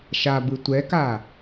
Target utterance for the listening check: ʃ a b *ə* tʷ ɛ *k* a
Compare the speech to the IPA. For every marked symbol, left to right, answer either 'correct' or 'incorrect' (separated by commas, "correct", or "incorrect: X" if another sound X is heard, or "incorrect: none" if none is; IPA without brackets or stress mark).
incorrect: ɯ, correct